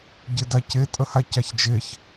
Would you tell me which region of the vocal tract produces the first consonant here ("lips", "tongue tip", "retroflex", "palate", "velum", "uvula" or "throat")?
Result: palate